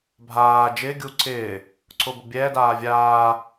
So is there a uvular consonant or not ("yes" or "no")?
no